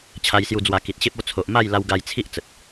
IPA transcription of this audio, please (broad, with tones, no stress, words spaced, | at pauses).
t͡ɕʰa˧jsju˧d͡zwa˧ ki˨t̚ɕe˦p̚ o˦ t͡sʰo˨ʔma˥˧jla˧w ɡa˧jt͡sʰi˦ʔ t͡sə˨t̚